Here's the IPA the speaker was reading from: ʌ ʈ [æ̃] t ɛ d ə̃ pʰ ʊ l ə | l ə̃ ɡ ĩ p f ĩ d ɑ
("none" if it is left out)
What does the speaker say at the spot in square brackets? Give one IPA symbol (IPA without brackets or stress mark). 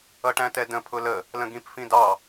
æ̃